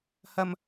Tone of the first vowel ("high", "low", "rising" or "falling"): low